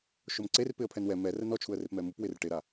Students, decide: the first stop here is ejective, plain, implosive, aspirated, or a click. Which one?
click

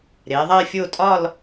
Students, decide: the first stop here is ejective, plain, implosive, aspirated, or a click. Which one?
ejective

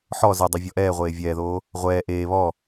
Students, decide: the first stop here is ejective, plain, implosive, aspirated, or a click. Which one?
plain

